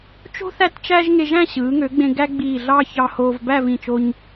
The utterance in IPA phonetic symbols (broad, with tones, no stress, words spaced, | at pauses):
t͡ʃo̤˥ θæ˥˧tt͡ʃæ˥ʒ ŋe˧ʒæ̃˥˧ ɕɯː˩˧ŋø˩˧ɡ͡bẽ˧ ɡæ˥ɡ͡biː˧˩ɮɑ˥˧ çɑ˧hoː˧v bæ˥˧vĩ˧˩t͡ʃo˧ɲ